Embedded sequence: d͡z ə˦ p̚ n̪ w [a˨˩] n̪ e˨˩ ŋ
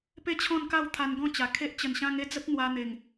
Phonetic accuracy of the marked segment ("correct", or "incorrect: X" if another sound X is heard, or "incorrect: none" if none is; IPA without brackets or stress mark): incorrect: a˧